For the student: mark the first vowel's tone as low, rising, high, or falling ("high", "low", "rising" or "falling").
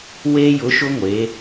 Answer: high